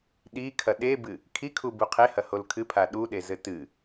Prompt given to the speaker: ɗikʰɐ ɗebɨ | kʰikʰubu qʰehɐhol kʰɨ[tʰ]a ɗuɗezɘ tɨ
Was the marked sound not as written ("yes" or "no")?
yes